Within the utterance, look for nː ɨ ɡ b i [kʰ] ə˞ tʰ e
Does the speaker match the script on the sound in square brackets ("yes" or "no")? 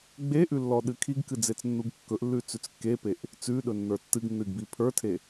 no